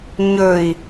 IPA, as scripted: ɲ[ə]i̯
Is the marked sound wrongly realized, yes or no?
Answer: yes